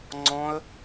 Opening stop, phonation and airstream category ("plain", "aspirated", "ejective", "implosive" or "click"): click